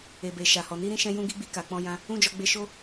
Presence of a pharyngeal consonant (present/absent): absent